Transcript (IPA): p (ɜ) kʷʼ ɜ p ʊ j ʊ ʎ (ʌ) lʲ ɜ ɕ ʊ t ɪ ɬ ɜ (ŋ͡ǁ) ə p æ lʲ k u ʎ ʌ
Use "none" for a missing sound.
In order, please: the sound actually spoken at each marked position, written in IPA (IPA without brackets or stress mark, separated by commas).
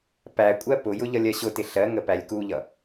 æ, ʌ, ŋ